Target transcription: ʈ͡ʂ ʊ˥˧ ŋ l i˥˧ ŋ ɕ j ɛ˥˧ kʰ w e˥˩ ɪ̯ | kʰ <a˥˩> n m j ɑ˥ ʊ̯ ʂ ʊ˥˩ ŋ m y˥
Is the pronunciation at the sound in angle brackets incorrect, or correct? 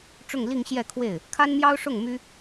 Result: incorrect